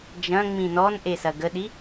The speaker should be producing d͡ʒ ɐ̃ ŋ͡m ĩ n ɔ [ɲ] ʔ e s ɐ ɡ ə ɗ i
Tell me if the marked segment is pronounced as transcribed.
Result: no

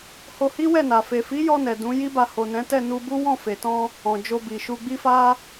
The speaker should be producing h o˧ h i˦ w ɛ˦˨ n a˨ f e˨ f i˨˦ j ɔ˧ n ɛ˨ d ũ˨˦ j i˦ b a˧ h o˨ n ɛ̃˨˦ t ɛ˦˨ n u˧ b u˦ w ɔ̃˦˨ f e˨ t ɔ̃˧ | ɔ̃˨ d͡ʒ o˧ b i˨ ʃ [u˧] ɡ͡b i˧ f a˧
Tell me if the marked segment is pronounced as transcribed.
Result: yes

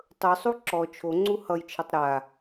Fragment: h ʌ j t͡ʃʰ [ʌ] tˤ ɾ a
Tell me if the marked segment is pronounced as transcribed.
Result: yes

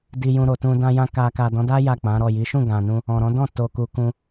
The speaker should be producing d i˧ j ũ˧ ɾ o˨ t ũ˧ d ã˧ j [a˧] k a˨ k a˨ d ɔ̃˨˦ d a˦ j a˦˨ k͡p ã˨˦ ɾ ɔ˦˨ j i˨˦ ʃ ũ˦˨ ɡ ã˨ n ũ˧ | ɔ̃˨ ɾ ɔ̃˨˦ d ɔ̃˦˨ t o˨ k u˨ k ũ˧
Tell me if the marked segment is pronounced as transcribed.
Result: no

